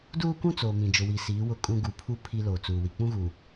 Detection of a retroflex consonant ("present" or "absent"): absent